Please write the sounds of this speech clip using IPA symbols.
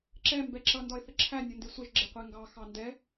ǁɛ mbɛǁʌ ndɒɪ̯θəǁʰæ nʲʊndɪsʷəʒ ɡ͡ǁɪqʷæŋɡɑ xɑndɛ

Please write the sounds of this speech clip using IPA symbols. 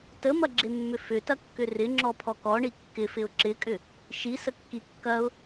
təmɐɡ͡ǁemːʏ fʏtɐkːʏ rɪŋ͡ǁɔpʰɔ kɔɳi kːɪfɪʊ̯ ǁɪkʼʏ | ʃisəkːi kːɐʊ̯

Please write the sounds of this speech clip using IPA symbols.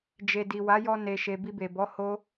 d͡ʒe˨ di˨wa˨˦jɔ˧ ne˨ʃe˨ bi˧be˨ bɔ˨˦ ho˦

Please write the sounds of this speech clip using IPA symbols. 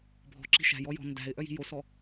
bʱɔ̤ǁi̤ ʃæ̤jɔ jɔ̤ ndæ̤ɪ̯ ʔœji̤josɔ

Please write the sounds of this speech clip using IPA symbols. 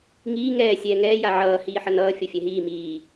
ŋiː ŋɛː sʲɛːŋɛː jaʕʌː hiːħʌnʌː fʲʌfʲɛɦiː miː

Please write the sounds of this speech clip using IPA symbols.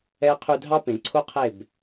ɛ˧qʰy˧ dʱɑ˦pẽ˨ ǀʰo˦qʰe˦˨b

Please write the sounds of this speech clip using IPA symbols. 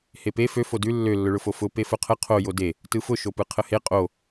hepe fø fodʉ lːø lːʊɭʊfofʊ pefʊqʰə qʰo jode | tɯfʊ ʃopɯqʰəhe qʼo

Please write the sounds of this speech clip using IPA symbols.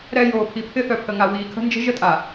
ɾɛ˨ joː˨pʰi˨pʰɪ˦θœ˨ pʰə˨ŋa˨ wiː˨kʰə̤˦nd͡ʒə̤˦ ʒə˦tʼa˨

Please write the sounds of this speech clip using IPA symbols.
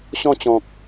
ɕɔ̃˥˧t͡ɕɔ̃˨k̚

